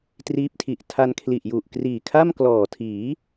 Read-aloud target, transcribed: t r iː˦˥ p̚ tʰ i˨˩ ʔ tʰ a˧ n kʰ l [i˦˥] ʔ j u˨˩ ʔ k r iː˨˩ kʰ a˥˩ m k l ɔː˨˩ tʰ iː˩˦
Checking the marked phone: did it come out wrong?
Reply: yes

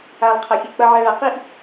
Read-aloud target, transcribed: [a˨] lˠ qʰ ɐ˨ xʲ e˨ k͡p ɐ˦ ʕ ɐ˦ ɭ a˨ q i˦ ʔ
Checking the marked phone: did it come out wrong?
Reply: no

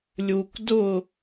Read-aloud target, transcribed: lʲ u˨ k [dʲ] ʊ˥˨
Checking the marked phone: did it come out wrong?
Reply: yes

